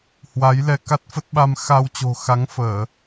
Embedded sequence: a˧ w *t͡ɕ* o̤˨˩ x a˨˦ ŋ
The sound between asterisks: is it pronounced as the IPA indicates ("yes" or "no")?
yes